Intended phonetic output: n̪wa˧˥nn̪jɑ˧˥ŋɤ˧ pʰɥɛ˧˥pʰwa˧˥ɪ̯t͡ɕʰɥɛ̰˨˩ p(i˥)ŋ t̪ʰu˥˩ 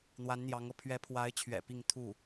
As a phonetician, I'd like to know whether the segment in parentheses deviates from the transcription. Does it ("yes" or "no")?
yes